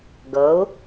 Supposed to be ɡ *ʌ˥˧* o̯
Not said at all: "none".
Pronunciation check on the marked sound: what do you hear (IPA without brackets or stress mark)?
ʌ˨˥